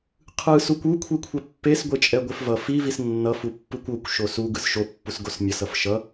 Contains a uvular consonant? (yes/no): yes